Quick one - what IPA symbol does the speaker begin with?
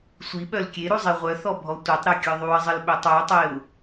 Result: sʷ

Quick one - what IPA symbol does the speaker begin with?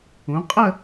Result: ũ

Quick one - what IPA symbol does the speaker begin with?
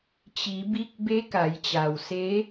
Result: t͡ɕ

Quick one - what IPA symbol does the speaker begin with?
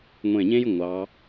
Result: ŋʷ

